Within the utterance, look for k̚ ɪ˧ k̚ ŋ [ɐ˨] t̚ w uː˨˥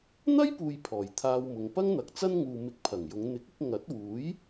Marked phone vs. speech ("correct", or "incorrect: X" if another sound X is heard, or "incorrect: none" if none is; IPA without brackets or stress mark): incorrect: ɐ˨˥